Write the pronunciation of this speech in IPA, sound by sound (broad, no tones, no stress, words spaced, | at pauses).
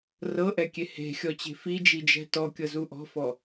rɤʔɛkʲe he̤xʲɔt͡ɕe̤ fid͡ʒid͡ʒɛ̤ tɔkʲɤzu ʔɔ̤fɔ